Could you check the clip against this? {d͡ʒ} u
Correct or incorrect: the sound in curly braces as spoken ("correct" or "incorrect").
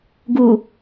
incorrect